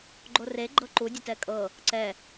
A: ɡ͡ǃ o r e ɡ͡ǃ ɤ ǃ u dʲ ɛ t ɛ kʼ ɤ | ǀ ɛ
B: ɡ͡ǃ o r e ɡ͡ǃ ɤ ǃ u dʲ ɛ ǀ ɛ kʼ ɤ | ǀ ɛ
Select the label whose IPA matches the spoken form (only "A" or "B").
A